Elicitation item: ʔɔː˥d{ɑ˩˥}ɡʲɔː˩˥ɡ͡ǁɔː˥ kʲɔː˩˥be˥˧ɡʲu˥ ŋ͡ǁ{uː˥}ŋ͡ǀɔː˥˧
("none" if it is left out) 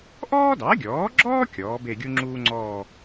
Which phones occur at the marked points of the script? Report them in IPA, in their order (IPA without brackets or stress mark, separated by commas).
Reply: ɑ˩˥, uː˥